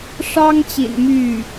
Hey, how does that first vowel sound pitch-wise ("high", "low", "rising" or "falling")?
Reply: high